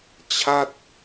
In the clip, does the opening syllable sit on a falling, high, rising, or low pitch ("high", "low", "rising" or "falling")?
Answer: falling